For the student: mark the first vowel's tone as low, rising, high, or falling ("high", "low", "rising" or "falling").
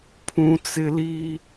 high